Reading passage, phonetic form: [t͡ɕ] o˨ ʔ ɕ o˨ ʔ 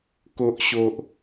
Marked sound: incorrect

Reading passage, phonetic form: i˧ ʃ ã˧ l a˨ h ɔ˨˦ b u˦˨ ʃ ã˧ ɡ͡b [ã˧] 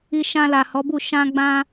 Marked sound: correct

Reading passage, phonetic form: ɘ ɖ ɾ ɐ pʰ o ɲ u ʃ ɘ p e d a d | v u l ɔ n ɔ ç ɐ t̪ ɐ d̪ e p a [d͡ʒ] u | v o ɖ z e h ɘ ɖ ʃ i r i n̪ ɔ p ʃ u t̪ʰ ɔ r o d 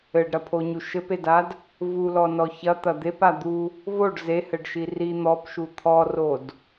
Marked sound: incorrect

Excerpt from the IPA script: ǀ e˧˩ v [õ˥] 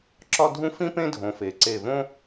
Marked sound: correct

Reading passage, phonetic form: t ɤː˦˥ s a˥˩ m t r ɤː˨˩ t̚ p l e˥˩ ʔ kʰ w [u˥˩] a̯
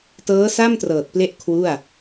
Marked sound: correct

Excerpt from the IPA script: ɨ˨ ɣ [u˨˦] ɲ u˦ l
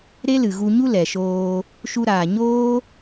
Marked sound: incorrect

